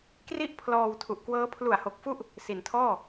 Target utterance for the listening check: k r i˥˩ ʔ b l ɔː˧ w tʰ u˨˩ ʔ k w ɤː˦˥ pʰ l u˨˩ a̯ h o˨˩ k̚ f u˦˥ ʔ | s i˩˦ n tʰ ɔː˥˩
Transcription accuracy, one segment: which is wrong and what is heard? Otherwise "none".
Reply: b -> pʰ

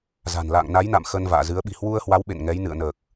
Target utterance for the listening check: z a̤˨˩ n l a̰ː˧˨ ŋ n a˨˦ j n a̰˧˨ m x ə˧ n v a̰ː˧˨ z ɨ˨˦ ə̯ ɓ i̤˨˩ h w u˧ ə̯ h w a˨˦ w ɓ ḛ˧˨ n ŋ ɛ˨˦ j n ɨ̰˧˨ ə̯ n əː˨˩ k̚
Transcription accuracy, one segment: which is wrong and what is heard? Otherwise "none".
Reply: none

